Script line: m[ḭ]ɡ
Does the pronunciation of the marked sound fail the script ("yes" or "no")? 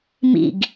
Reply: no